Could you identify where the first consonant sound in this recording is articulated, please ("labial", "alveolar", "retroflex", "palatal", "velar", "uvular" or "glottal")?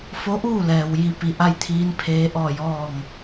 labial